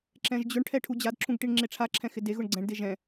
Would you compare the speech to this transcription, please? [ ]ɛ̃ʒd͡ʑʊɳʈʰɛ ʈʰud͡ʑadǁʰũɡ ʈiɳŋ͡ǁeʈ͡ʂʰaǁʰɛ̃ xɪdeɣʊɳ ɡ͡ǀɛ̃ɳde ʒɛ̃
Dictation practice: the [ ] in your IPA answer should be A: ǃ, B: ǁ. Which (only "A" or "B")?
B